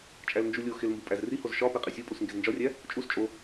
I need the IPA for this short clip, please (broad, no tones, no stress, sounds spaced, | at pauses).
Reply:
t͡ʃʼ æ l n d͡ʒ u lʲ o x e l m b u pʼ æ z r i h o z ʃ ɒ p e qʼ i sʲ o pʼ u s ŋ ɡ e z n d͡ʒ ɒ rʲ æ | t͡ʃʼ u s t͡ʃʼ o